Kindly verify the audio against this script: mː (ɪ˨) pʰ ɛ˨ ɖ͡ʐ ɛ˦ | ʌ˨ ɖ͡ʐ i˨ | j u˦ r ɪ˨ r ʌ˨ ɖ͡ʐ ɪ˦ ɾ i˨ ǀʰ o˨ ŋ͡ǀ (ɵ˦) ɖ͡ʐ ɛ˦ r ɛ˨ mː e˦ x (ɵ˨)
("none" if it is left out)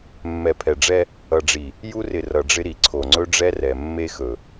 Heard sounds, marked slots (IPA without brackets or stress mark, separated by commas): ɛ˨, ɵ˦, ɵ˨